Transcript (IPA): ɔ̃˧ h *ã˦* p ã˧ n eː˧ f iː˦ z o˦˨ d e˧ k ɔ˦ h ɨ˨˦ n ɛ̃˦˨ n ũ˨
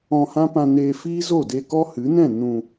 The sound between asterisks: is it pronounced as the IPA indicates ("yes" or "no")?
yes